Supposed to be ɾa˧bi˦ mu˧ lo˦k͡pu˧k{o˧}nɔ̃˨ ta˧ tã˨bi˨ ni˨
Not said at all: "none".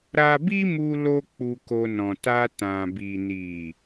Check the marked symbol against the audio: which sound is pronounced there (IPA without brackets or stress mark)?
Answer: o˧